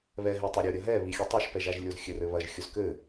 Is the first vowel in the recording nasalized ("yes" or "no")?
no